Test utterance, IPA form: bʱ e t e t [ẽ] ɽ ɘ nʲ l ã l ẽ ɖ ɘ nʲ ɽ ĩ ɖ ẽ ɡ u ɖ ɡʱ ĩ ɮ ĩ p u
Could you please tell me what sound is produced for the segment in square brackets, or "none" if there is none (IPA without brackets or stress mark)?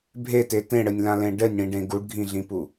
ẽ